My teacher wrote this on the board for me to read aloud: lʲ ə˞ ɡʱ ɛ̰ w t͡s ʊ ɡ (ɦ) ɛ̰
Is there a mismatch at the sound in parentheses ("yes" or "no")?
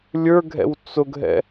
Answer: no